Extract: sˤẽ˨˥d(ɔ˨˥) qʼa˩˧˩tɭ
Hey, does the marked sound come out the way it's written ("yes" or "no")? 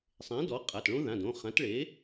yes